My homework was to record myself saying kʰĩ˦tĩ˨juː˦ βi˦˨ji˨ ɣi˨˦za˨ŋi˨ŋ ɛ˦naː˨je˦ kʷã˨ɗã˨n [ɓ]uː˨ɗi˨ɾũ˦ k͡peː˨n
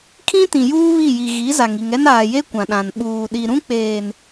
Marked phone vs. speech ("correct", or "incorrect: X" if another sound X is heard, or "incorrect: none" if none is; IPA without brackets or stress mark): correct